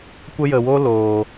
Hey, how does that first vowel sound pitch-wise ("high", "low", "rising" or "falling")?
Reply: high